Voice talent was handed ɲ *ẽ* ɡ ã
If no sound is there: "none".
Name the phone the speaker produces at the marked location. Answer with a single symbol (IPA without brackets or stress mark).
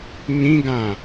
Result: ĩ